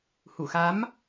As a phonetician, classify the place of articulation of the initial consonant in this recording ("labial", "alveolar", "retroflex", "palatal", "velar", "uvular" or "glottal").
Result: glottal